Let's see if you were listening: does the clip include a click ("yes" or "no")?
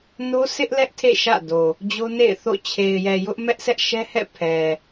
no